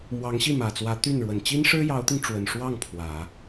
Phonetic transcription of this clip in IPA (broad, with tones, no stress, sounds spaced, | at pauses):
m w ɑ˧˥ ŋ ɕ i˥˩ m ä˨˩ t͡s w ä˧˥ t̪ y˥˩ n ɻ w ə˨˩ n t͡ɕ i˥ n ʂ ɻ̩˥ j ɑ˧˥ ʊ̯ t̪ i˧ ŋ ʈ͡ʂ w ə˨˩ n ʂ w ɑ˥˩ ŋ pʰ w ä˨˩˦